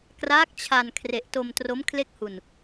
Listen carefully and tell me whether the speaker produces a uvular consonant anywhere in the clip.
no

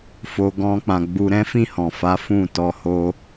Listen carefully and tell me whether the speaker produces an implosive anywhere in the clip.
no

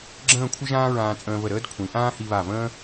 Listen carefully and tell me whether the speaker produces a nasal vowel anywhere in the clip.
yes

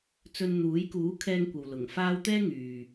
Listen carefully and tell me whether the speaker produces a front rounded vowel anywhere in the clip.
yes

